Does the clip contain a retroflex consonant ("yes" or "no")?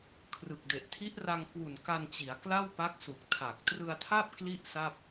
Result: no